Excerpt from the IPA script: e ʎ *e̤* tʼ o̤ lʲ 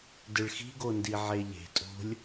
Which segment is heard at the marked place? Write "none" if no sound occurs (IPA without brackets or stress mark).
e̤